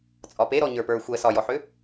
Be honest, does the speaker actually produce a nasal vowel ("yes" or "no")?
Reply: no